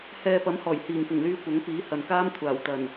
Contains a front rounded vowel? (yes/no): yes